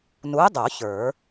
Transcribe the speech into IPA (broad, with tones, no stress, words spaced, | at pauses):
nu˨˥e̯dˤo˨˩˦ çə˞˨˩˦